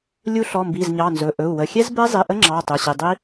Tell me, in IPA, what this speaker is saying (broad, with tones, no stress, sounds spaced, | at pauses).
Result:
lʲ u˦˥ ɬ ɔ˩˧˩ m b i˩˧˩ z ɲ ɑ˩˧˩ n z ɵ˩˧˩ ʔ ɵ˩˧˩ u̯ w ə˩˧˩ xʲ ɛ˦˥ z b ɛ˦˥ zˤ i˩˧˩ ʔ ə˦˥ ŋ͡ǁ ɑ˩˧˩ tˤ ɵ˩˧˩ ɕ i˩˧˩ dˤ i˦˥